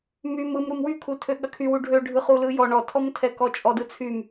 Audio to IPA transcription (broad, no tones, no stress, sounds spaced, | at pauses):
m y m ɯ m ɾ u m w y kʰ u tʰ ø ɠ ɐ kʰ y w u ɖʱ ø ɖʱ ɯ χ u l ɯ j ɔ ɳ ɔ tʰ ɔ m tʰ ɛ k ɔ t͡ʃʼ ɔ d ɯ t͡sʰ y m